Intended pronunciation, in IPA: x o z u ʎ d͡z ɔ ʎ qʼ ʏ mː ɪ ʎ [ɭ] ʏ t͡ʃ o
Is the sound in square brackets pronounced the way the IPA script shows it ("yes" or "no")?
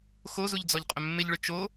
yes